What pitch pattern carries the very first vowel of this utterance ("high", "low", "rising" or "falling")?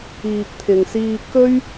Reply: low